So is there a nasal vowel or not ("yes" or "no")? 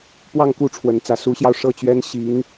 no